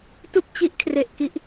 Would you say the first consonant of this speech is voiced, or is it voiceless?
voiceless